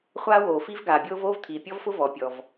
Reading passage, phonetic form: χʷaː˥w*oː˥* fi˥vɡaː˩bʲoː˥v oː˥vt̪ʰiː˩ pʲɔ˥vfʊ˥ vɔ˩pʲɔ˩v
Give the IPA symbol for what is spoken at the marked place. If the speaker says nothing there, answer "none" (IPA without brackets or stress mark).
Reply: oː˩